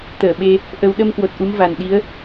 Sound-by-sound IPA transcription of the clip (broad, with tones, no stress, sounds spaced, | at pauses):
t̪ əː˧˩ ɓ e˧ | ʔ ə˧ w ɗ ə˧ m k w o˨˩ t̚ ʔ u˨˦ m v a˨˩ n ɗ i˨˦ ə̯